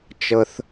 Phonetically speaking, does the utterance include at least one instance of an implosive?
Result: no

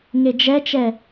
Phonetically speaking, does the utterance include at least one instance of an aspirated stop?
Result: no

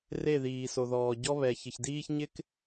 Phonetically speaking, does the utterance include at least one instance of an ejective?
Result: no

